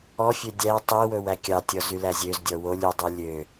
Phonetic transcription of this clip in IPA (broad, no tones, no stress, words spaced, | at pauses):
ɔfʲø dʲæ tˤiwɵw ækʲɑtʲɔ zylæzʲøzdʲɔ wolʲ ydˤi lʲø